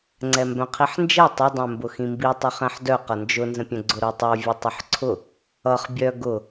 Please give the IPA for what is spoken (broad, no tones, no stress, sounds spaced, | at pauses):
ŋ͡ǀ ɛ m b œ̃ qʰ i ħ n d͡ʒ ɛ tˤ ʏ dˤ œ̃ m b ʊ x ĩ m b i tˤ ʊ χ ɛ̃ ħ d œ q ʌ n d͡ʒ ʊ n z ə̃ pʲ œ̃ ɡ͡ǀ ʊ ɾ o tˤ o vʲ ə tˤ ʊ ħ ǀʰ ʊ | ʌ χ bʲ œ ɡ ʊ